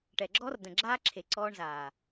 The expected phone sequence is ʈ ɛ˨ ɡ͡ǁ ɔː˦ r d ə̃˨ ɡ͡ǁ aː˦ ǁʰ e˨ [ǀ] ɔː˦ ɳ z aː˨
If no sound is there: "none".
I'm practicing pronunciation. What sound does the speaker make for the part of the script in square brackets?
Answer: ǀ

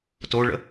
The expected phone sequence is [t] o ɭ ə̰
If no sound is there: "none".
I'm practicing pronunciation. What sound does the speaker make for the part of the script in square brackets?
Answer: t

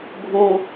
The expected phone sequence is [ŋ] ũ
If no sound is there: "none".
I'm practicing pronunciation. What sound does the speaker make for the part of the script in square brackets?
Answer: ɡʱ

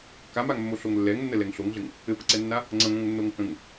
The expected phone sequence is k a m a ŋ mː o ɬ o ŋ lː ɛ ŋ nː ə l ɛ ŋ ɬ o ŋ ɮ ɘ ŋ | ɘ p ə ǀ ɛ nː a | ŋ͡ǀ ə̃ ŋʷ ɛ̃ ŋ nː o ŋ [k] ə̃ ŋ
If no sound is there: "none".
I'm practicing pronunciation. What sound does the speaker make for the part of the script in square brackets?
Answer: k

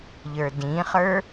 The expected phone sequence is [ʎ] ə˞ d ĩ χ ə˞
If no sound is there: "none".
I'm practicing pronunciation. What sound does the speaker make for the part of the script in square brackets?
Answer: ʎ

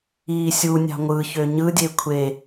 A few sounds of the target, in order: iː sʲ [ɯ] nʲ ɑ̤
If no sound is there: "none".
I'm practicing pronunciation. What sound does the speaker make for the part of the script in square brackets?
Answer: u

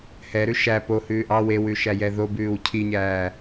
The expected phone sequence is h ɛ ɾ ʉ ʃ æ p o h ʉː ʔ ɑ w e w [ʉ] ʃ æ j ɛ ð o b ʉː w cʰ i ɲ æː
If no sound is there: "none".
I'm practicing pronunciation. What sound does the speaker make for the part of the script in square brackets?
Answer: ʉ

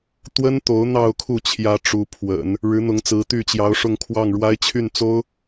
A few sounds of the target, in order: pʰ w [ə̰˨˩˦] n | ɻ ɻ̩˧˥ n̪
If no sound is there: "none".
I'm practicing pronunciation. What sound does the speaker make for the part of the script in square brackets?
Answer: ə̰˨˩˦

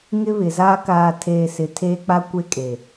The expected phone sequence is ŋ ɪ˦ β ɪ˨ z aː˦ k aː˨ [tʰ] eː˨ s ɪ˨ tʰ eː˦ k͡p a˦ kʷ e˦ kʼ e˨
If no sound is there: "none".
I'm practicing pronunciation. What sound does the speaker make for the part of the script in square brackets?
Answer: tʰ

